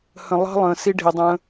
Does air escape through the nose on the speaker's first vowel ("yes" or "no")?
yes